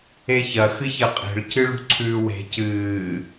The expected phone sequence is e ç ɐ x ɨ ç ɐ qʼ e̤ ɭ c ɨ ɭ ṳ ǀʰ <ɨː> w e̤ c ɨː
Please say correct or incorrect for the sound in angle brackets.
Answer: incorrect